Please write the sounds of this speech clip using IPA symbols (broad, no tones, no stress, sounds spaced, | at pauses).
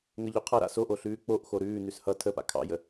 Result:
ŋ ə ʎ ʉ qʰ ʌ ɾ a̰ s o ʔ o ɬ ʉː k͡p o ʔ x o ɾ ʉː n ʉ s h ʌ tʰ ə p a̰ kʰ ɑ̰ j ə